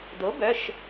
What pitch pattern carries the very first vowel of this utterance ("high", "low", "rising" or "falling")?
rising